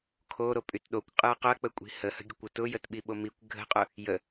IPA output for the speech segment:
kʰ o ɾ o pʼ y t ɗ o kʷ qʼ ɯ ɐ̯ q ʊ ɐ̯ k͡p ə kʷʼ i̤ h ə h ə̤ ɡʲ ə kʷ ʊ t ʊ j ə t ɓ i ɓ o m i kʷ ɡʱ ə̤ qʼ ʊ | j ə

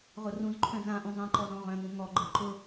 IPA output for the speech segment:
ʁ ʊ r ũ z ǃʰ œ̃ z ã ʔ ũ zˤ ɛ̃ ǃ ɔ z ɔ̃ ʁ œ̃ ŋ ũ ŋ ɔ ɡ͡ǃ ɯ ǃ ʊ

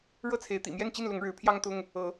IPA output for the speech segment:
ɻ ɤ˥˨ t͡sʰ e˨˦ ɪ̯ t̪ ḭ˨˩ m j ɛ˥˨ n t͡ɕ i˥˨ n l ʊ˨˦ ŋ ɻ ɻ̩˨˦ pʰ j ɑ˦ ŋ t̪ ʊ˦ ŋ | ɤ˨˦

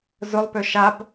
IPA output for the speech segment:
z ʊ lˠ p ʏ ʃ a b

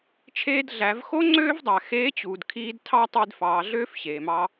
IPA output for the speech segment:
t͡ʃʰ eː˧ d ɮ æ˩˧ v x o˥ ŋ͡ǀ øː˥ v dˤ æ˩ x eː˧˥ t͡ɕ uː˩ d kʰ iː˧ d tʰ ɑ˥ tˤ i˧ d f ɑː˩˧ ɮ øː˥ f ɕ eː˩ m ɑ˧

